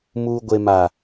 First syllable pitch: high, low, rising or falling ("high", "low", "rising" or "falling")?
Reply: low